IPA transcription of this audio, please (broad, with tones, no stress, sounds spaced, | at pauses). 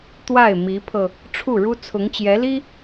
t̪ w a˥˩ ɪ̯ m i˧˥ pʰ ɤ˧ | ʈ͡ʂʰ u˥˩ ɻ u˥ t͡sʰ ʊ˧˥ ŋ t͡ɕ j ɛ˧˥ l i˥